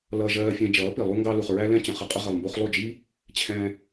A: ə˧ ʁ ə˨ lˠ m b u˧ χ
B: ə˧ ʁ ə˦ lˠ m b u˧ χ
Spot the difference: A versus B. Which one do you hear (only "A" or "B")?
A